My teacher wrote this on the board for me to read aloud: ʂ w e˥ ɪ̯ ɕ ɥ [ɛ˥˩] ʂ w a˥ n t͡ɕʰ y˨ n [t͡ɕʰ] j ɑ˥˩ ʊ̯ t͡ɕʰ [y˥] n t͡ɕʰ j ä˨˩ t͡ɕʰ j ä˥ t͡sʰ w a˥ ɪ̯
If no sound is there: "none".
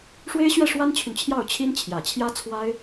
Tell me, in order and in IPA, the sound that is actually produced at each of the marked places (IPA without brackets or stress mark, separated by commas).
ɛ˥˩, t͡ɕʰ, i˥